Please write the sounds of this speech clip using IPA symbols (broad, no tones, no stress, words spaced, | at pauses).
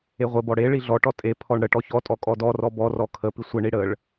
eʁʷɘbɔ ɽe ɭiɮɔʈɔ tʼe pʰɔɳɽəʈɔ çɔtʼɔ kʼɔdɔrɔ bɔrɔ kʰə pisʷɘɳi ɽəɭ